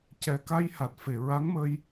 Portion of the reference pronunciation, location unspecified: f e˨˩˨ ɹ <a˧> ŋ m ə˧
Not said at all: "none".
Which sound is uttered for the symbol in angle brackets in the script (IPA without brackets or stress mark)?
a˧˥